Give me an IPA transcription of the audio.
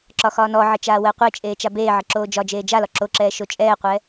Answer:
ǁɒxɒːnɔʕə t͡ʃaːwəːqʷet͡ʃʼeː t͡ʃabeːʕə ǁoːd͡ʒɒd͡ʒeː d͡ʒalɒ ǁoǁɛː ʃot͡ʃʼɛːqʷɛ

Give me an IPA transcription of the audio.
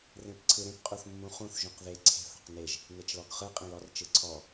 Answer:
rẽpǀʰɯɾẽp qʼuθmːũχũθ ʒũqðe ǀʰe̤θ ɔ̤qneʒ | net͡ʃlɔɡχɯ qʼẽlɔr t͡ʃɯǀʰɔ

